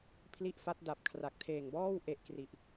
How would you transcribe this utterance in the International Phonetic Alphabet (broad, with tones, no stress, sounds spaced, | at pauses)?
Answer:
pʰ l i˦˥ ʔ f a˦˥ t̚ d a˨˩ p̚ kʰ r a˨˩ k̚ tʰ eː˨˩ ŋ b ɔː˥˩ w ʔ e˨˩ ʔ k r i˨˩ ʔ